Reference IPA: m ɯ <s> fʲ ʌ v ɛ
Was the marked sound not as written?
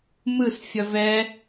no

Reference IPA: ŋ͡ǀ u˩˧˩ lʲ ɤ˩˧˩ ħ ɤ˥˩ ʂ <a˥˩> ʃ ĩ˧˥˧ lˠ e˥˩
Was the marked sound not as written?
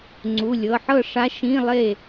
yes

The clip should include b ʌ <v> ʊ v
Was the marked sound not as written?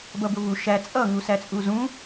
yes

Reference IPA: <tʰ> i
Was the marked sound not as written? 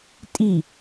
yes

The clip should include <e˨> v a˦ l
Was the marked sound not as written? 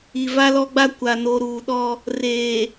yes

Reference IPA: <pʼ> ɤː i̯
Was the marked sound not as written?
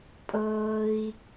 no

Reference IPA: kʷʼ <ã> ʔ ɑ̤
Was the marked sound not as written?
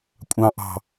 yes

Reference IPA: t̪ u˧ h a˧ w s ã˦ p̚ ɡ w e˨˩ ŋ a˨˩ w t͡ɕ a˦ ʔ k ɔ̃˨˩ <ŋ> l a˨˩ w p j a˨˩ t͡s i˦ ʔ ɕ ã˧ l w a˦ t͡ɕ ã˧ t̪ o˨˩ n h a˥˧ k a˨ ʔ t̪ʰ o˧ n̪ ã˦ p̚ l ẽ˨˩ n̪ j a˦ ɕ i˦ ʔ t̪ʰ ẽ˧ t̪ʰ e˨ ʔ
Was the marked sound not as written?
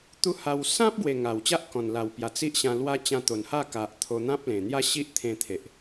yes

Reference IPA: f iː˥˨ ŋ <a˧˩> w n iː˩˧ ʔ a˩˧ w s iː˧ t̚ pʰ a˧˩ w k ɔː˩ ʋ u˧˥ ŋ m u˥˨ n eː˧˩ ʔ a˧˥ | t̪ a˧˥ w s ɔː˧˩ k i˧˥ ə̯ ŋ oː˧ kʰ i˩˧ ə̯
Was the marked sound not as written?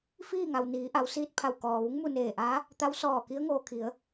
yes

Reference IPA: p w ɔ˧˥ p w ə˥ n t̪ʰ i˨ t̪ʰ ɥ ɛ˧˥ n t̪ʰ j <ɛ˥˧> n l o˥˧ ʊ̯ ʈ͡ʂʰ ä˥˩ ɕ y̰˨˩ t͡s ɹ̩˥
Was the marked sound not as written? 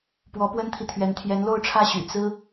yes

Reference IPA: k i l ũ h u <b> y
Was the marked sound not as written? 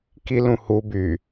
no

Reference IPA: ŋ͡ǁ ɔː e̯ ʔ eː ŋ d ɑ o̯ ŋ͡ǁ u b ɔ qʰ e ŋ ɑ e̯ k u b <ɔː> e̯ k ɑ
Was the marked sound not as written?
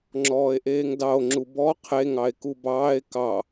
yes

